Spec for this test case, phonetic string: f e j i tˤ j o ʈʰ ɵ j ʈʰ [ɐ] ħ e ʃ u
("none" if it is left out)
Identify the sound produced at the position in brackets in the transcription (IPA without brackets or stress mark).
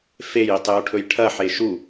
ɐ